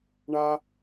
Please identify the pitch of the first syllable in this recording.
low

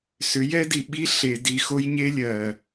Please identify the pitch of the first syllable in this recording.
rising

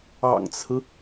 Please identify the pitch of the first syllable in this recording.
low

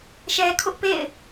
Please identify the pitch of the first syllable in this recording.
low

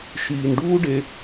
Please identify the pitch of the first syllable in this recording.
low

